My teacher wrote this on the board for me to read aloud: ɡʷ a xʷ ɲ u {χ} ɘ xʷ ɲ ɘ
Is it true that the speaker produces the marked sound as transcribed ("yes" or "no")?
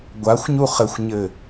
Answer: yes